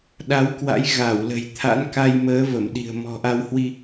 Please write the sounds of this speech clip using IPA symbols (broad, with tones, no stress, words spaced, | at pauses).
ɗa˨˦wkwa̰˧˥j ɣa˧˩wlə̤˨˩j t̪ʰa̰˧˥nka˧j məː˨˦və˧˩mɗi̤˨˩ə̯ mɔ̤˨˩ʔa˧whwi˧